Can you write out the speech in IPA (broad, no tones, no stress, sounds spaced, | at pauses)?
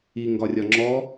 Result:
i ŋ ɡ ɒ rʲ ɒ ŋ͡ǁ ɔ